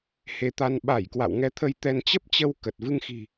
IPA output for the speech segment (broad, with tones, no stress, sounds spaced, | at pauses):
h e˨˦ t̪ a˧ n ɓ a˧˩ j k w a̰˧˨ w ŋ ɛ˨˦ t̪ʰ ə˧ j t̪ ɛ˧ n t͡ɕ ə˦˥ p̚ t͡ɕ ə˧ w k ə˨˩ t̚ v ɨ˧ ŋ x i̤˨˩